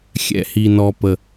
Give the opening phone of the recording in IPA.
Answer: xʲ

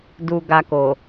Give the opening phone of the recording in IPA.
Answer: d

